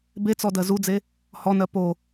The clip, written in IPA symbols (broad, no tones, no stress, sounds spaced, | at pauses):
b e t͡s ɔ d ɜ z u d͡z e | h ɔ n ɜ p o